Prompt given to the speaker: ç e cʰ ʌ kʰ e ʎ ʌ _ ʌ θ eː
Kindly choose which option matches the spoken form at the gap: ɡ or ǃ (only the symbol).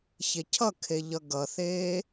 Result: ɡ